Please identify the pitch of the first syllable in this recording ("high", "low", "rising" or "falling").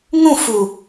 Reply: falling